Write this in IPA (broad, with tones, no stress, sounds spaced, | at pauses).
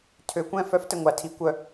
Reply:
tʰ ø˨˩˦ kʷ ɛ̃˥˧ f œ˦˥ f t ə˧˩ ŋʷ a˨˩˦ tʰ i˨˩˦ kʷ œ˧˩